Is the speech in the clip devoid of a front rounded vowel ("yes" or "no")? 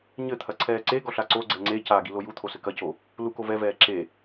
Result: yes